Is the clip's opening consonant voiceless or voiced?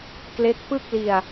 voiceless